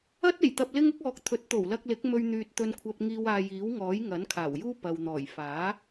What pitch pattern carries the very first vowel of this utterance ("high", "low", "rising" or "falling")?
high